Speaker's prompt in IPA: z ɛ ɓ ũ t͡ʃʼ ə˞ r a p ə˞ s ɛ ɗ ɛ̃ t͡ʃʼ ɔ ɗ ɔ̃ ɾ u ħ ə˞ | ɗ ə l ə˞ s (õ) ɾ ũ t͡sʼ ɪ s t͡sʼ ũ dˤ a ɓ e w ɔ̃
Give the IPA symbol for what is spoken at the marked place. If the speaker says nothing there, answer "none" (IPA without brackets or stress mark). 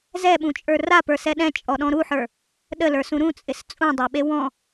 ũ